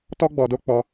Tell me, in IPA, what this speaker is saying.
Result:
tɔ˦ɡ͡bɔ˧do˦ k͡pɔ˧

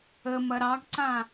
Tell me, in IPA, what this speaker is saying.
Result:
əmɐ ɾɑɡǀã

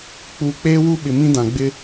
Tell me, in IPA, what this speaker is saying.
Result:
k͡puː˨k͡peː˦wu˦ɓɪ˨ mĩ˦dã˨ ɡ͡bɪ˦

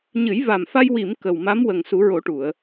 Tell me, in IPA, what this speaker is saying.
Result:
ɲɨ˨˩˦jva˨˩mfa˧j wi˨˩˨m kə˨˩wma˧˥m wə˨˩ŋsu˨˩˦ɹo˨˩˦ʈu˨˩˨ə̯

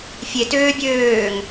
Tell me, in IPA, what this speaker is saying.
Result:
fʲetøː bʲøːŋ

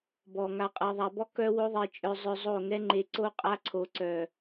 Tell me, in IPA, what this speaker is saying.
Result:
bɔ˨ ŋa˨qʼɤ˨ðˤa˨bɔ˧ kœ˦wo˦ðˤe˧t͡ʃʼœ˧ zˤœ˧zˤo˦˨ ŋɛ˦ŋ͡ǃe˧ǀo˦ qʼa˧ǀʰo˨ǀœ˨

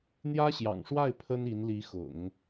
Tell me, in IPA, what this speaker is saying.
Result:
n̪jä˥ɕjɑ̰˨˩ŋʂwa˥˩ɪ̯ pʰə˥ni˧˥nli˧˥xʊ̰˨˩˦ŋ

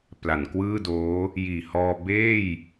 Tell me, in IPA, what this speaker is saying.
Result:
pla˩˦nkwɯː˥˩doː˦˥ | jiː˨˩hɔː˧ beː˥˩j

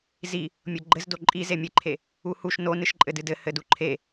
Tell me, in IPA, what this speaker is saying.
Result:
zi | mʲoɡ͡ǃɘzdo ǃʼi zemʲɨǃʰe | uhuʃ no nɨʃǃʼɘdɨdɘ hɘduǃʰe

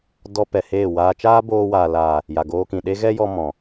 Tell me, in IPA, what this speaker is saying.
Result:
dɔ˧ pɛ˨heː˦˨waː˧ t͡ʃaː˦boː˧waː˨ la˨ | ja˨ɡoː˧kĩ˨ɗe˦ ɣɛ˦jɔ˧ mɔ̃˨

